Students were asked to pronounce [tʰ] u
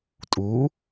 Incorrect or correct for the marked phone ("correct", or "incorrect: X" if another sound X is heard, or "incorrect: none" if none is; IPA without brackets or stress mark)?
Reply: incorrect: tʼ